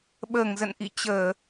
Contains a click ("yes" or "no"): no